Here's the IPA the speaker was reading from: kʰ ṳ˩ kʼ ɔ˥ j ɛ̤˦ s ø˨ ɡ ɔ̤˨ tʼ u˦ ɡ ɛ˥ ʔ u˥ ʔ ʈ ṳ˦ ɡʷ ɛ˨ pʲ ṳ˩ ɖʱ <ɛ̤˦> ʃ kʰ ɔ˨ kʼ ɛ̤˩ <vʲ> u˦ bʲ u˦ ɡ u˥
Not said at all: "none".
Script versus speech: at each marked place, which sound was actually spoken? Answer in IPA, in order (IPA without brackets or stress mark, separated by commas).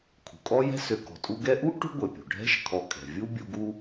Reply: ɛ̤˦, vʲ